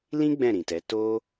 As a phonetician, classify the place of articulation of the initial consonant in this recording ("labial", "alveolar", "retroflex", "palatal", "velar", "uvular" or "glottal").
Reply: alveolar